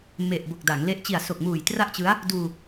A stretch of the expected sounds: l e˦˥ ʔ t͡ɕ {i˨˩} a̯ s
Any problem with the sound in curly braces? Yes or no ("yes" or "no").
no